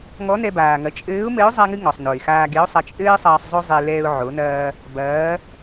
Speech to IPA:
ŋɔ˧˥nɛ˧baː˩ŋɐ˩˧ t͡ʃʼɘː˧˥ʊ̯mɘ˧˥ʊ̯ zˤa˥ŋɨ˥ ŋɔ˩sˤ no˩ɪ̯xaː˧ɡe˧˥ʊ̯sˤɐ˧ t͡ʃʼɘː˥ɪ̯sˤɐː˧sˤ zˤo˥zˤe˧ lɛː˧ʊ̯ ʕo˩˧nɐː˧ | bɐː˩˧

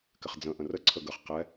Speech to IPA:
kɪχd͡zə̃ ʔə̃rə ǀʰəɡəχ qɛ

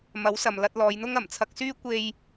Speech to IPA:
mɐ˨˥wsɐ˨m lɐ˧t̚lɔː˨˧jn̪ʊ˥ŋ ɐ˨˩mt͡sʰɐ˧k̚syː˥ kʷe˧j

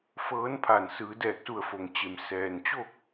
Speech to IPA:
fɤː˧˥npʰa˧˩n sɯː˩˧dɛː˧˩k̚su˧˩ə̯fo˩ŋ t͡ɕe˩msɛː˩n t͡ɕo˥˨k̚

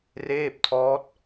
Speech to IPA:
reː˥˩p̚tʰɔː˦˥t̚

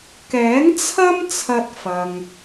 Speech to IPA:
kɛː˨˥ŋt͡sʰɐ˥m t͡sʰɐ˧t̚fɐ˨ŋ

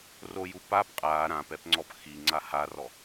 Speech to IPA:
roju pap qʼa ɾãpɛpŋ͡ǀɔp xiŋ͡ǀa harɔ

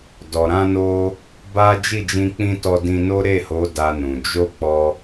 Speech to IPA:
dɔ˨ɾã˧no˧ | ba˦ d͡ʒi˦˨d͡ʒĩ˧k͡pĩ˧ tɔ˧dĩ˧no˦ ɾe˦˨ho˨˦ da˧nũ˨ d͡ʒo˧ k͡pɔ˧

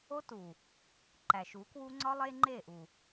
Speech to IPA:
o˦tu˨ | ǃæ˨ʃ u˨˦ kwu˦ ŋ͡ǀɒ˦ lˠe˦ŋ͡ǃe˦˨ʔu˨

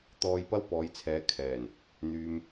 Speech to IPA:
t̪ɔː˧jpɐ˥wpɔː˨˧jt͡sʰɛː˨˧ kʰɛː˨˩n | n̪yː˨m

